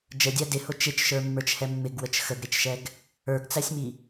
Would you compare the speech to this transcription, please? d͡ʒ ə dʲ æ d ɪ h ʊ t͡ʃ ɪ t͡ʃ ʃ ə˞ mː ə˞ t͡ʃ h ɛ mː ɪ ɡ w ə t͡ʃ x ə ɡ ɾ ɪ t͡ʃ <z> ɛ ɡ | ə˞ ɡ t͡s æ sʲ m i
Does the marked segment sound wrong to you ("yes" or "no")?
yes